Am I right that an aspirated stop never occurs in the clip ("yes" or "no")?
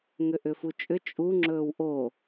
yes